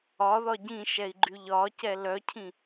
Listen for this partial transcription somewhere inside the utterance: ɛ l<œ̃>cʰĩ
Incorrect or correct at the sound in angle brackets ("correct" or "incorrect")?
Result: incorrect